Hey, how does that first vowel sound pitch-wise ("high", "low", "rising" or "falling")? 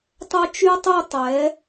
high